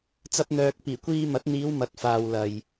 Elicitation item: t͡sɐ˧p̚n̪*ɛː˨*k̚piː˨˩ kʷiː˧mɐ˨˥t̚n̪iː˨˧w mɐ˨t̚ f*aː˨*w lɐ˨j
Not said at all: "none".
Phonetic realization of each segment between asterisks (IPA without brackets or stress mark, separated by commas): œː˨, aː˨